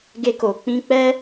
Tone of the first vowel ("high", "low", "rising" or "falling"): high